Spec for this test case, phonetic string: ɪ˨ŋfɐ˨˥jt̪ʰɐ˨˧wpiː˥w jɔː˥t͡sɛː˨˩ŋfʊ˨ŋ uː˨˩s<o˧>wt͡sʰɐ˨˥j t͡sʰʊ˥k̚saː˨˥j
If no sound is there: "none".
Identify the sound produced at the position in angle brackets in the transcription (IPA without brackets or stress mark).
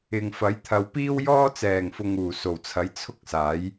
o˨˩